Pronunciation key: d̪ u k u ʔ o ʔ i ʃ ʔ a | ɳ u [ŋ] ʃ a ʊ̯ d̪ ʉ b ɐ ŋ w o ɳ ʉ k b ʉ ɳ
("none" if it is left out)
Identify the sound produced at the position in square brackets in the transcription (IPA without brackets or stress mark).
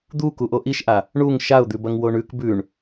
ŋ